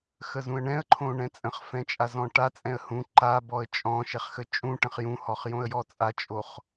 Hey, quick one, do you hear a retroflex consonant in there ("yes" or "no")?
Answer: yes